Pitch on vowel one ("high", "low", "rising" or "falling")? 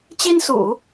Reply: high